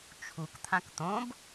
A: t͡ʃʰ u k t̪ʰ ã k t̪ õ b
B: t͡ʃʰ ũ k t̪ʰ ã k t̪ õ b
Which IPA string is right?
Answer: A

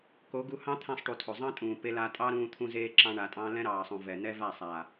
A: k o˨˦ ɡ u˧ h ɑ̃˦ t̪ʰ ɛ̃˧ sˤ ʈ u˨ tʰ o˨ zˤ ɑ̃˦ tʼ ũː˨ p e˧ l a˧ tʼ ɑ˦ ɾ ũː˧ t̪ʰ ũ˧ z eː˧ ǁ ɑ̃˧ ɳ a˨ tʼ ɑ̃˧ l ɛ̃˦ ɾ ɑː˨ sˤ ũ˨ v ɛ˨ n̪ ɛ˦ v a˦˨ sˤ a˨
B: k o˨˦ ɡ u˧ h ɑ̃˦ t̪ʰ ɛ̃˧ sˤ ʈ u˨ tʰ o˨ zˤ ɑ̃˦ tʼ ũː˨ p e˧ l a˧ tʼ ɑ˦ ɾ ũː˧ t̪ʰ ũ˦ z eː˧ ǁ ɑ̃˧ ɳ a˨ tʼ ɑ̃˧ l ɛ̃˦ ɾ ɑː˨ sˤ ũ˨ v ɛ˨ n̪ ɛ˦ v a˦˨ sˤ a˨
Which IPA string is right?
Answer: A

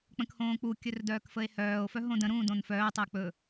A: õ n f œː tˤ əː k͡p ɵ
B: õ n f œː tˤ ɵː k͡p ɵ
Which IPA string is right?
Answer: A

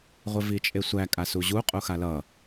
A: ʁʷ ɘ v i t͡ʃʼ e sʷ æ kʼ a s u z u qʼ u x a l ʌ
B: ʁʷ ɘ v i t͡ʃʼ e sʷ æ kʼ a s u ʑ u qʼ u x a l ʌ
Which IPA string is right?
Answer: B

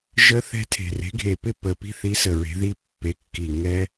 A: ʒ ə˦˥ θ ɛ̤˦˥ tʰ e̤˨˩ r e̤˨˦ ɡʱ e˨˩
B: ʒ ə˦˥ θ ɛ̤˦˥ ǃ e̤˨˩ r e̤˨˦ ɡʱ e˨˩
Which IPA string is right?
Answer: A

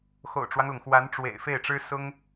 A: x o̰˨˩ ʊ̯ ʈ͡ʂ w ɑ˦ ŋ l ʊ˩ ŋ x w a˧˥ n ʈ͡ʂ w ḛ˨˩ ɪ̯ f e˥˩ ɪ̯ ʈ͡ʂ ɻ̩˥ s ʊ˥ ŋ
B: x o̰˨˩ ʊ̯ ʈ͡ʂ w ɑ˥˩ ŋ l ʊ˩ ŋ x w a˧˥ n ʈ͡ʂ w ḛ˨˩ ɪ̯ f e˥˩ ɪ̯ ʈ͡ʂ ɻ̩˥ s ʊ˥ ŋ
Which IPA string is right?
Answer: A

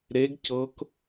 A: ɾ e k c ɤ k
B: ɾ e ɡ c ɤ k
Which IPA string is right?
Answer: B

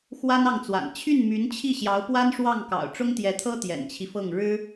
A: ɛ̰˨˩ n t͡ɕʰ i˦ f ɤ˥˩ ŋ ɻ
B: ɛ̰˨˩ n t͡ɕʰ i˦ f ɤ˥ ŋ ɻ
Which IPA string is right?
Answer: A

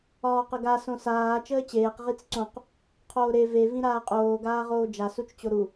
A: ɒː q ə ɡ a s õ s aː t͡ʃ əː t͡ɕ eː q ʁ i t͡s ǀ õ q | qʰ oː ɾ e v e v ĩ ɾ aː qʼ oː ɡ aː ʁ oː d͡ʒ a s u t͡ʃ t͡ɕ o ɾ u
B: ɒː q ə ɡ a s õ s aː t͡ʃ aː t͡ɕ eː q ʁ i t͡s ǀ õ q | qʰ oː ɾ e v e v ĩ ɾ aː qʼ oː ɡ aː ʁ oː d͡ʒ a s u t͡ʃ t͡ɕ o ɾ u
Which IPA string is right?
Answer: A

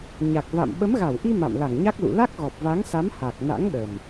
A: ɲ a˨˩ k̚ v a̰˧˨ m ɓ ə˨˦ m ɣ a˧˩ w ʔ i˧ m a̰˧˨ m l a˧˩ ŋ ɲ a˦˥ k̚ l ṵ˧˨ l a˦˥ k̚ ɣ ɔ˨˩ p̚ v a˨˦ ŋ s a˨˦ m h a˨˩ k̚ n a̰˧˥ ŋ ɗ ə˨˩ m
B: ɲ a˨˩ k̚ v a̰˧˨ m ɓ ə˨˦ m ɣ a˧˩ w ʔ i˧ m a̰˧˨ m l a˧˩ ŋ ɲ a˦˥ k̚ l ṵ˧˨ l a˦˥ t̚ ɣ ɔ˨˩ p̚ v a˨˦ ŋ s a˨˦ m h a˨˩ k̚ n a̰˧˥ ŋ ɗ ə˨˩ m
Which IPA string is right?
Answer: A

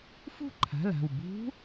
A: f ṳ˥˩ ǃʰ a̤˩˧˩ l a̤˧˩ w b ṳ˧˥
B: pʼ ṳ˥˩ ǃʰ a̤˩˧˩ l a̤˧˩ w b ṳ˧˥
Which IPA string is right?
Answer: A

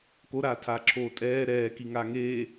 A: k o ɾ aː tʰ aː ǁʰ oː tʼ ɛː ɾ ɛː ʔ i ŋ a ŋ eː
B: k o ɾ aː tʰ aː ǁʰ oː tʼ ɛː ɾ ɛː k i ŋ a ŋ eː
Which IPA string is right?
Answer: B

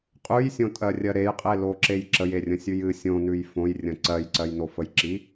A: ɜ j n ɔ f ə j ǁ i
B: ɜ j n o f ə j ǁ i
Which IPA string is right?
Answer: B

